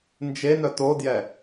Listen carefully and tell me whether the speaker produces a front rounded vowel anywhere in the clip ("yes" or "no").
yes